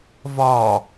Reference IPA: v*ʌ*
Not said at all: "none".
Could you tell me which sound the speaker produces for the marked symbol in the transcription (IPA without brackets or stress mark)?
ɒ